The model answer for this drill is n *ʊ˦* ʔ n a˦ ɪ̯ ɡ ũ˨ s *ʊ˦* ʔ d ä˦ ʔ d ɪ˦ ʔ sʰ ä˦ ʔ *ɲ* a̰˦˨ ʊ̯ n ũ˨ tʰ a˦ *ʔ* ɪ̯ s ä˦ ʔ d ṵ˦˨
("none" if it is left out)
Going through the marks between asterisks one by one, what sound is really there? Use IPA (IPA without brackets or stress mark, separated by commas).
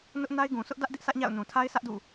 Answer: ʊ˦, ʊ˦, ɲ, none